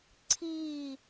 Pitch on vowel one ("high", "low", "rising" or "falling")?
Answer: falling